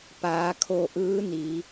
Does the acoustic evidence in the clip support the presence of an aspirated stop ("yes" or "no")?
yes